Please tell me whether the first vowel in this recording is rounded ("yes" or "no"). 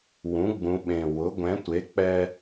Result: yes